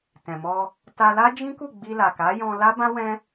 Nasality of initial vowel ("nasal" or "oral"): nasal